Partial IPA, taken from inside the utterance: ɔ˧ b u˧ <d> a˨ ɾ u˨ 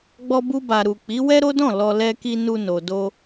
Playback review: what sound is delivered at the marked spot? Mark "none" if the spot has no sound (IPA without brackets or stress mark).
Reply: b